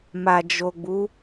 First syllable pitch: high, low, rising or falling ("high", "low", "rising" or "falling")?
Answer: low